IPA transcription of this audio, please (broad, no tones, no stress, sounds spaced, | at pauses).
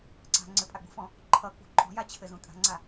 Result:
ǀ a̤ ŋ͡ǀ ɘ pʼ a ɡ͡b ṳ f ɔ̃ | ǃʰ ʌ k͡p ṳ ǃʼ ɔ̤ j a t͡ɕʰ ɘ z ũ tʼ a̤ ŋ͡ǀ a